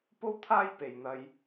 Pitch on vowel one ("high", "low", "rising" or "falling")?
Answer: high